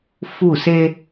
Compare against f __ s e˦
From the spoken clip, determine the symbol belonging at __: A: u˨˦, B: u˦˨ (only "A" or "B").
B